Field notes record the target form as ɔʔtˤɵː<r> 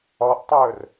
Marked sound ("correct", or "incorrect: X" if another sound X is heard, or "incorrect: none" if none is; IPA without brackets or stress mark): correct